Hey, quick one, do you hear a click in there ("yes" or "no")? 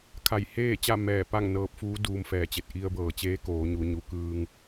no